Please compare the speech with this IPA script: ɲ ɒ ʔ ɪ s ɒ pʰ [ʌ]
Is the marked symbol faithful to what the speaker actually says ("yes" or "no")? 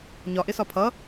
yes